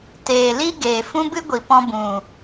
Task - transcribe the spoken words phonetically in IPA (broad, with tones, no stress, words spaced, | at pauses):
teː˨li˦ ɡeː˨fũ˦bɨ˦ɡʷi˨ pɔ̃˧bũ˨